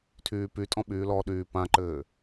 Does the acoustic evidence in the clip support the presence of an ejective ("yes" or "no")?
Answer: yes